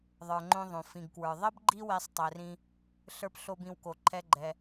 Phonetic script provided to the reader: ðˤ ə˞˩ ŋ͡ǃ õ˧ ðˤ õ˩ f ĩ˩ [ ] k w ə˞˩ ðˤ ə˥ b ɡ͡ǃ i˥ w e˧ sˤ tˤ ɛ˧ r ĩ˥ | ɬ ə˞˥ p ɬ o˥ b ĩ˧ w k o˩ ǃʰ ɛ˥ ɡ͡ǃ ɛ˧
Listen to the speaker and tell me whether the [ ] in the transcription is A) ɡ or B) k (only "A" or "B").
A